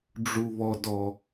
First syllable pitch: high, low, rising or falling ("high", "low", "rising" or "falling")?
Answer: low